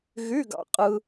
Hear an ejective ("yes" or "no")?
yes